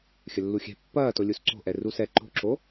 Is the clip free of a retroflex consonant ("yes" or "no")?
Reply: yes